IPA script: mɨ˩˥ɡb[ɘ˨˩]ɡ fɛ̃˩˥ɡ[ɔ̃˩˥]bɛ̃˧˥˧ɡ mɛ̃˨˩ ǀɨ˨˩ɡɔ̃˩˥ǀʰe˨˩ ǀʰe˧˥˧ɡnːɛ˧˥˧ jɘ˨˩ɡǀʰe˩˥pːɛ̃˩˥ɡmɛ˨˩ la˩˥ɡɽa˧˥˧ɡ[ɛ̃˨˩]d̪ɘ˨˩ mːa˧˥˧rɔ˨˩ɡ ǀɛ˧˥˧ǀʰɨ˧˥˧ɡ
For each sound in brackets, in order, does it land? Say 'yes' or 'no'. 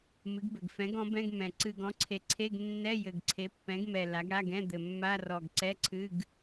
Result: yes, yes, no

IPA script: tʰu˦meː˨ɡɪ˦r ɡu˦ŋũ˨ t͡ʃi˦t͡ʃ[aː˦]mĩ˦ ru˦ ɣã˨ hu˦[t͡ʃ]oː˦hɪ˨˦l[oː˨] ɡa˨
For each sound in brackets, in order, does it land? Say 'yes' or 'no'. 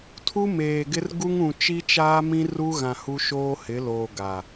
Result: yes, no, yes

